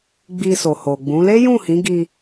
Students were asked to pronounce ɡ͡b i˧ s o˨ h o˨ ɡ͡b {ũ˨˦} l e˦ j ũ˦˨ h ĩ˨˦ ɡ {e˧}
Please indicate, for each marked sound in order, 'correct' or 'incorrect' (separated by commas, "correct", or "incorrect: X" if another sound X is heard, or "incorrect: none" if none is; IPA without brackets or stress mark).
correct, incorrect: i˧